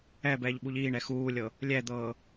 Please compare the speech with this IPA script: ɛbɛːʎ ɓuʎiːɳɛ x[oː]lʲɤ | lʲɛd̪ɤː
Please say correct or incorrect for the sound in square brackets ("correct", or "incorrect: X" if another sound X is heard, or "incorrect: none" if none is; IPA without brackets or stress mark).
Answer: incorrect: uː